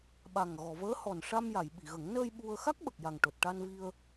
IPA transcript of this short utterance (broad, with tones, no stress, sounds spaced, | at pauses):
ɓ a˨˩ ŋ ɣ ɔ˨˩˨ v əː˧˥ h ɔ˨˩ n ʂ a˧ m j a˨˩˨ j ɓ i˨˩˨ ɣ ə˨˩˦ ŋ n əː˧ j ɓ u˧ ə̯ x a˦˥ k̚ ɓ ə˨˩ k̚ j a˨˩ ŋ ʈ o˨˩ t̚ ʈ a˧ n v i˧ ə̯